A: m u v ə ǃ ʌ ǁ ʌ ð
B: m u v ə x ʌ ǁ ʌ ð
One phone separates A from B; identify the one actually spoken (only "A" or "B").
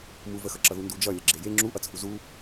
B